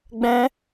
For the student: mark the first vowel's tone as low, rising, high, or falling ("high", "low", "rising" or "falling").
high